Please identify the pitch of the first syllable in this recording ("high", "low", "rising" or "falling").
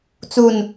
falling